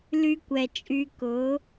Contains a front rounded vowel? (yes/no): yes